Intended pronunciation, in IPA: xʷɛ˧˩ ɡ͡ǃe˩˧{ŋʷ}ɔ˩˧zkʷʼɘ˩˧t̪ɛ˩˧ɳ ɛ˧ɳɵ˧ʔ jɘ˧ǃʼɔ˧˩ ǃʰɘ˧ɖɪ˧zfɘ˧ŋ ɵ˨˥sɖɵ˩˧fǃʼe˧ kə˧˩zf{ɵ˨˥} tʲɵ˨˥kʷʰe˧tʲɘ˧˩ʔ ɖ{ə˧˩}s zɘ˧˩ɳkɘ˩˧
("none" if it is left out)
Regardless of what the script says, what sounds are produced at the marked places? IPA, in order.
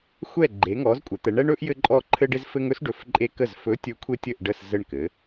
ŋ, ɵ˨˥, ə˧˩

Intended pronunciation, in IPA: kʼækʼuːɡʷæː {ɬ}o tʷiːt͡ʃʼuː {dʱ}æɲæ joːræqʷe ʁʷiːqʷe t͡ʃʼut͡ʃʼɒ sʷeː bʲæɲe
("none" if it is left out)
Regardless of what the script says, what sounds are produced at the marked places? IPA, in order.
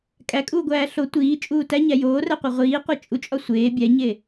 ɬ, t

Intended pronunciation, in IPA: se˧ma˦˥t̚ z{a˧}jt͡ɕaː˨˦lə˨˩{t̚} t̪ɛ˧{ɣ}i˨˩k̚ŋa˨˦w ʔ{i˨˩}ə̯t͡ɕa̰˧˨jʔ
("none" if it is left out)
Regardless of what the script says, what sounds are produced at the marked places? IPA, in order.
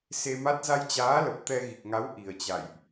a˧, p̚, ɣ, i˨˩

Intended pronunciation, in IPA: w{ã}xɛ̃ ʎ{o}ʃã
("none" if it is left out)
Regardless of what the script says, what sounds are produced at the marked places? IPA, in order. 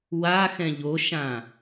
a, o

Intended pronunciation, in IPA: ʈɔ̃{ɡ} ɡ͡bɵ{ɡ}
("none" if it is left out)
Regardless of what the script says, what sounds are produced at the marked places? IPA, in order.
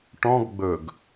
ɡ, ɡ

